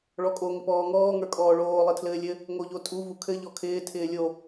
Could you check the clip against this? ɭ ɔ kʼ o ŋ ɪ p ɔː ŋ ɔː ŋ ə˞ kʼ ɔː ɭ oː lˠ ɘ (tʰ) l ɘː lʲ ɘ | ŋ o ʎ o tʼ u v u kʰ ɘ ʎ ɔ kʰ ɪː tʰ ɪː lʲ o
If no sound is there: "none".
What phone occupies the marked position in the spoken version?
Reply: tʰ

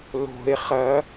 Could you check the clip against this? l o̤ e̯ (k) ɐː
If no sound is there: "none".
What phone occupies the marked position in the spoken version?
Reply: χ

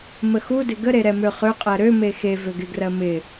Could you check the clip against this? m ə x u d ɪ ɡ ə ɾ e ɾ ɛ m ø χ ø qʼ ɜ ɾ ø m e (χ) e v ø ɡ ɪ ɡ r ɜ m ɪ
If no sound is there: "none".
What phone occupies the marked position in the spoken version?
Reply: x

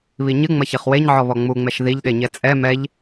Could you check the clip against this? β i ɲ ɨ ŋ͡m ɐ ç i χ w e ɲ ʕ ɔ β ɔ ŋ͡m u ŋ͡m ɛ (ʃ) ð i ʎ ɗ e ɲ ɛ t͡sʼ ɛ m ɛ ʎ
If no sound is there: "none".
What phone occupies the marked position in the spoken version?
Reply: ʃ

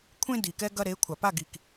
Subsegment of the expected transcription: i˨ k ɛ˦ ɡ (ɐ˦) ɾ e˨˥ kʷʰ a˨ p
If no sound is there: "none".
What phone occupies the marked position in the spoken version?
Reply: ɐ˦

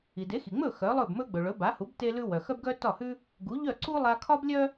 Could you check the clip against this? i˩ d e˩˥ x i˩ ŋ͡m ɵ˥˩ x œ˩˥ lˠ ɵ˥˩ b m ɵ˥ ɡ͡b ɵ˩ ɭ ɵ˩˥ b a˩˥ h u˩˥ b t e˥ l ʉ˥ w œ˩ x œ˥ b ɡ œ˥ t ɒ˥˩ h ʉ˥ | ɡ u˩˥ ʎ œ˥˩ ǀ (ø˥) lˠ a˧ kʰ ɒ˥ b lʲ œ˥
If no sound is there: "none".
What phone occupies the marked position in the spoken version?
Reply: u˥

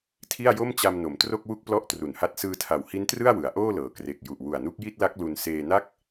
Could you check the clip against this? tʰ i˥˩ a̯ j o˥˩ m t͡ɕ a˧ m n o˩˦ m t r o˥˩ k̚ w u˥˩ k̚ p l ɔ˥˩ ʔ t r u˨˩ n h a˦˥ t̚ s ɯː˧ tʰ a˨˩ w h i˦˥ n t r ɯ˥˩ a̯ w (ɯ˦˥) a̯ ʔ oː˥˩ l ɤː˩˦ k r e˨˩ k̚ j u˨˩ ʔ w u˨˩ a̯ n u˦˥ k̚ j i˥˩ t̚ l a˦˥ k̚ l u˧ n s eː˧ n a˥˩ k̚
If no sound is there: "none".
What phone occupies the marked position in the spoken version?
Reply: ɯ˩˦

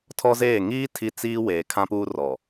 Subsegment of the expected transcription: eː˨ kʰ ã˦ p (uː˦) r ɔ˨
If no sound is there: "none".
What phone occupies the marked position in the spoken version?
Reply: uː˦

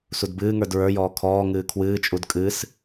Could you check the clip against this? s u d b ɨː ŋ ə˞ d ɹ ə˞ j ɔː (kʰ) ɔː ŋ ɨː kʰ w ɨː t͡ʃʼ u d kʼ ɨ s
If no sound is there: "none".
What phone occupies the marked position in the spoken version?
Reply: kʰ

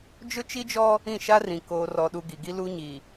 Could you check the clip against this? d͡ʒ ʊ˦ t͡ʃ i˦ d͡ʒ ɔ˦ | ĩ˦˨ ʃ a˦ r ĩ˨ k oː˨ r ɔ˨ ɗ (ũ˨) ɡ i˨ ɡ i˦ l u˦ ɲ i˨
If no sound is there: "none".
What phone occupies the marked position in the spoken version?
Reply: u˨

